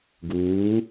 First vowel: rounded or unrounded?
rounded